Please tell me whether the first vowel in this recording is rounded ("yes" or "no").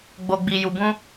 yes